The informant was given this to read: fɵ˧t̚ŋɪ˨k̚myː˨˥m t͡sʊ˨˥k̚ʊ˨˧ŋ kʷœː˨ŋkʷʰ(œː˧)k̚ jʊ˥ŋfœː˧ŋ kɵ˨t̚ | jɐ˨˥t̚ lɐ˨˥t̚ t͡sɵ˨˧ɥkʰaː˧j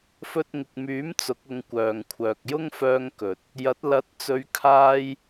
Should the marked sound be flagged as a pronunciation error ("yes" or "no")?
yes